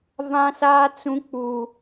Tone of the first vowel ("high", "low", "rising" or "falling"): high